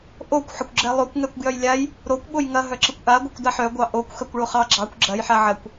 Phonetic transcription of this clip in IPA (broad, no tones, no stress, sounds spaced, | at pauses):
ʔ o kʷ ħ ə kʷ ɡ͡ǁ ɛ lˠ o kʷ ŋ ɛ kʷ ɡ j œ j lʲ a j | ɾ o kʷ ɓ o j ŋ ɐ ɦ œ ǁ ə kʷ ʔ a ɡʷ ɐ kʷ d a ħ œ ɡʷ ɑ ʔ o kʷ x ɐ kʷ ɭ o χ ɑ ɡ͡ǁ ɑ kʷ ɡ͡ǁ ɐ j ħ a ʕ ɐ kʷ